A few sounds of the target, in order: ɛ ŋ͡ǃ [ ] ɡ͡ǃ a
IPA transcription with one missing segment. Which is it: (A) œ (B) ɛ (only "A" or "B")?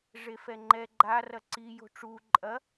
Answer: B